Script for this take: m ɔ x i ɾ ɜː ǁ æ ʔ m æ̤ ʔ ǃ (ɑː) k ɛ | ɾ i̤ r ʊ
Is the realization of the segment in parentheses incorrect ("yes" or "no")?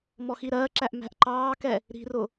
no